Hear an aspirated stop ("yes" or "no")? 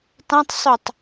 no